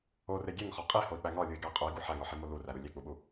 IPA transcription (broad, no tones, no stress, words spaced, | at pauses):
ore ɡʲeŋχɒ qʼihoi̯k͡pæ ŋɒlʲui̯ɡæ qʼui̯ɡu ħæŋɒħimo luræɾu lʲek͡puɓu